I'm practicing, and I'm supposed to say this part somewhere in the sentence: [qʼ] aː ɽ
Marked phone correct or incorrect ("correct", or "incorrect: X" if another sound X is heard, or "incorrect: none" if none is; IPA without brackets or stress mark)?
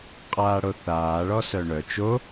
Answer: correct